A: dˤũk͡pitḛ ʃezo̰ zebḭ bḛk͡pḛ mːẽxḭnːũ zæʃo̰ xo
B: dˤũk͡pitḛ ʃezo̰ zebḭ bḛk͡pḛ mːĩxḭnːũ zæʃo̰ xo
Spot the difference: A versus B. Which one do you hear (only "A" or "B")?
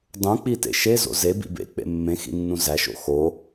A